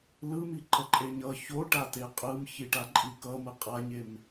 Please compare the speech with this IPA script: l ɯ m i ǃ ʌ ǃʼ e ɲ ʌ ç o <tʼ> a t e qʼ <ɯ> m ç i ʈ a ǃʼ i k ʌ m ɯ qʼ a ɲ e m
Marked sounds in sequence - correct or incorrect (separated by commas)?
incorrect, correct